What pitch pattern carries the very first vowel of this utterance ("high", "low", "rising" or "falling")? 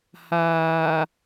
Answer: low